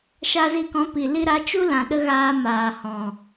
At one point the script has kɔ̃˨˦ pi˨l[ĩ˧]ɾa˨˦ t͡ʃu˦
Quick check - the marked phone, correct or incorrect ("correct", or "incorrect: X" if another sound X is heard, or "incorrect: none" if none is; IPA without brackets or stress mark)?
incorrect: i˧